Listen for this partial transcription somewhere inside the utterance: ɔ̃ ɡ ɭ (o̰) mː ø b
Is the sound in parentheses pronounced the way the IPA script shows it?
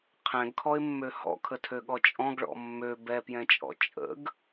no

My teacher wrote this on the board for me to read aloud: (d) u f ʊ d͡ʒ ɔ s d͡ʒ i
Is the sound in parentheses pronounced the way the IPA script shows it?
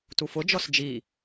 no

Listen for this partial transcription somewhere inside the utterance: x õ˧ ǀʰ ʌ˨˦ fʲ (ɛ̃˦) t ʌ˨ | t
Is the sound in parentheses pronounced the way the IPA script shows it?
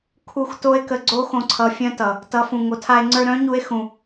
no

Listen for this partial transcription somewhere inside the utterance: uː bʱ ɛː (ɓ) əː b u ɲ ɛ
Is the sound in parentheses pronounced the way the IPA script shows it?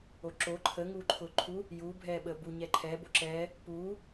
yes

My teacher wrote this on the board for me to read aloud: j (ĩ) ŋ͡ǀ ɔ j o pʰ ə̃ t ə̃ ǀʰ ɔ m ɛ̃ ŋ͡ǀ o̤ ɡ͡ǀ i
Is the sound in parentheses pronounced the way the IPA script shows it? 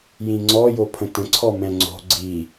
yes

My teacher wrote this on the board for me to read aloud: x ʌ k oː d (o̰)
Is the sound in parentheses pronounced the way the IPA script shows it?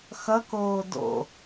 yes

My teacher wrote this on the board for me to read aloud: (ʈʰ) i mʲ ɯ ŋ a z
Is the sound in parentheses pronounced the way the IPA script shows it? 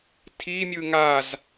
no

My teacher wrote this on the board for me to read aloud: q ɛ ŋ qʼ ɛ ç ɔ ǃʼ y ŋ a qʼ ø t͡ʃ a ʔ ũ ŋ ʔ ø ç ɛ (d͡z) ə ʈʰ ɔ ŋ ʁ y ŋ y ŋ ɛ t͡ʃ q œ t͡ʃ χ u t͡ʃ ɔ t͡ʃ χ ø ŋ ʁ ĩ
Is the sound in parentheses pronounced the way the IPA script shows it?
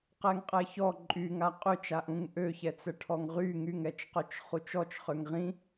no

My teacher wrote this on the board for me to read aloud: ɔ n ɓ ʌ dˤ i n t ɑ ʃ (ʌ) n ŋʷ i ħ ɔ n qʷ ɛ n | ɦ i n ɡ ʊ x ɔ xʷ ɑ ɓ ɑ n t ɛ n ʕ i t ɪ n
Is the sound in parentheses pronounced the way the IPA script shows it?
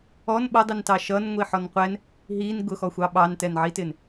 yes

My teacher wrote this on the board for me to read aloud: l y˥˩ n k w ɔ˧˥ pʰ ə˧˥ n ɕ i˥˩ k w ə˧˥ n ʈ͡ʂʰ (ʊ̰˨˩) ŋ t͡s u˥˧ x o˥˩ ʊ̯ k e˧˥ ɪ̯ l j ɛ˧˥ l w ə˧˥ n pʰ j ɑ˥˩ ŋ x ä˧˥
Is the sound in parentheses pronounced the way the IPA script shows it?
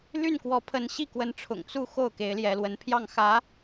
yes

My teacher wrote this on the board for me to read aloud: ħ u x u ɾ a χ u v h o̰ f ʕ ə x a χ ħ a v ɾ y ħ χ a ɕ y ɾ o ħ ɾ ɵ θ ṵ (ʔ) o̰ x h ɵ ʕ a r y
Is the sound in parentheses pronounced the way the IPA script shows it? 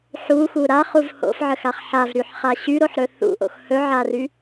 yes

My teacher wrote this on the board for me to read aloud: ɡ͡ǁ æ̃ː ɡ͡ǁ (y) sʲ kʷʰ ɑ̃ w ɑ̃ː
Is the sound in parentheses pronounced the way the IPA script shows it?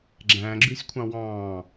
yes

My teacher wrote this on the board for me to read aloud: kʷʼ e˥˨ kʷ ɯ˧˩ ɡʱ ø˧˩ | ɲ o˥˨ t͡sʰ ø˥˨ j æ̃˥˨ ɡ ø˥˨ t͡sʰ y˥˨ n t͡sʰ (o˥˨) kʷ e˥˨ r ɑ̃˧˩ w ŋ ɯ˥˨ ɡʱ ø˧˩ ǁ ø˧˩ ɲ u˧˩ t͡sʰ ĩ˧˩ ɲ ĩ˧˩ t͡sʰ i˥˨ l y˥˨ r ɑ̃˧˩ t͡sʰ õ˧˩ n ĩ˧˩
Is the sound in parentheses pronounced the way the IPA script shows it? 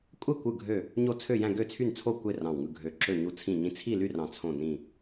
yes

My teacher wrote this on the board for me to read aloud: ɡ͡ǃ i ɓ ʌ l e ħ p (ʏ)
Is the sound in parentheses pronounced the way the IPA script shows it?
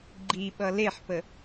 no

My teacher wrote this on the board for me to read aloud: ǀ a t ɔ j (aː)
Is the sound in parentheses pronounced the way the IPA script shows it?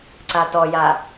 no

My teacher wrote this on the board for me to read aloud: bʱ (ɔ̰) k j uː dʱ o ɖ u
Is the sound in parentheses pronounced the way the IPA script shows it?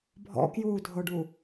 yes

